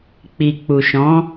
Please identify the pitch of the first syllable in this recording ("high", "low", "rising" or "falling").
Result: low